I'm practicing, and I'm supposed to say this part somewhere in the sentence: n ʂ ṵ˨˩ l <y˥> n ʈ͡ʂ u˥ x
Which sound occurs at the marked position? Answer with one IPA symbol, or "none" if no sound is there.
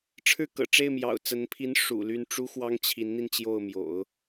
y˥˩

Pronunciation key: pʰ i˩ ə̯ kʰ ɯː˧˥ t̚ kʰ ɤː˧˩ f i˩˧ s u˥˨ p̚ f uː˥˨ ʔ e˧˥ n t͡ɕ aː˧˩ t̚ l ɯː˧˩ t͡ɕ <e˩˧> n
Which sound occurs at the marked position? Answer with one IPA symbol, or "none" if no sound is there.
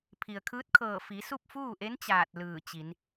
i˩˧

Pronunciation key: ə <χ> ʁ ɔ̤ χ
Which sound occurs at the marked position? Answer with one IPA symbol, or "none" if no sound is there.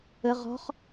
none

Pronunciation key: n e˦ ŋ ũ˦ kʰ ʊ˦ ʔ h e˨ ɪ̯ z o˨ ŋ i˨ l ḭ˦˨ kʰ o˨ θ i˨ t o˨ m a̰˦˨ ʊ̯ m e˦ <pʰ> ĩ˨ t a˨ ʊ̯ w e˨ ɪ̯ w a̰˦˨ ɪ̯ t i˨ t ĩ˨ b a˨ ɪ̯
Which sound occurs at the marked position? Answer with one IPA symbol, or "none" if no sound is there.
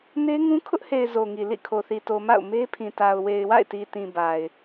pʰ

